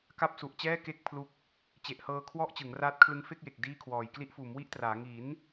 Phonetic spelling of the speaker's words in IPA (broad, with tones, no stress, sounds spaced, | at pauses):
k a˥˩ p̚ s u˨˩ ʔ t͡ɕ ɛː˥˩ k e˥˩ k̚ pʰ l u˦˥ k̚ | t͡ɕ e˨˩ ʔ h ɤː˧ kʰ w ɔ˥˩ ʔ t͡ɕ ɯ˩˦ ŋ r aː˦˥ t̚ kʰ l ɯ˦˥ ŋ f e˥˩ k̚ j e˨˩ k̚ d iː˥˩ kʰ w ɔː˨˩ j k l i˦˥ ʔ f uː˩˦ m w i˥˩ ʔ t r aː˩˦ ŋ i˩˦ n